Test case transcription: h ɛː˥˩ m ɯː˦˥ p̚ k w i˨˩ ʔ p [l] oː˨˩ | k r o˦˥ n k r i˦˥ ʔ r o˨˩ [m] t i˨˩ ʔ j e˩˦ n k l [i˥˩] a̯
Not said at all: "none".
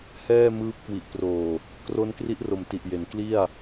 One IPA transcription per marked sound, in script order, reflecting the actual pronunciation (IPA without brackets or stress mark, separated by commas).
r, m, i˥˩